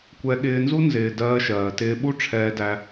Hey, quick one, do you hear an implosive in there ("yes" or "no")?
yes